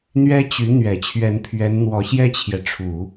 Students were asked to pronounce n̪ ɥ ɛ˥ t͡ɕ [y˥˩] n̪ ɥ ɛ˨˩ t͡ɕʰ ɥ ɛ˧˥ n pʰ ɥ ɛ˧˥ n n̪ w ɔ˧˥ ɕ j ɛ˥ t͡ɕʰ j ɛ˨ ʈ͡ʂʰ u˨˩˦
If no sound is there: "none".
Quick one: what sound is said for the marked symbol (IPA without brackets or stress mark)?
y˧˥